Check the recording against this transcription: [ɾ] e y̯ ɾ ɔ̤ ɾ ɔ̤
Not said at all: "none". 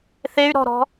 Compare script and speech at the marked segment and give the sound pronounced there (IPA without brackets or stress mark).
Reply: θ